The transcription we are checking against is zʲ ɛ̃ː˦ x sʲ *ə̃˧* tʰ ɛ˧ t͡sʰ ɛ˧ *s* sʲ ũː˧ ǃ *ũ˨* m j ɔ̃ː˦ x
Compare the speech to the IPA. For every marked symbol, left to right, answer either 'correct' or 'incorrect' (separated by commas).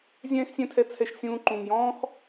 incorrect, incorrect, correct